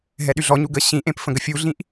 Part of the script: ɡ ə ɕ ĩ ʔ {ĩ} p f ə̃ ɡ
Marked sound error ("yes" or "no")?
yes